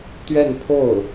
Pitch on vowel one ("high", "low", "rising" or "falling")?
falling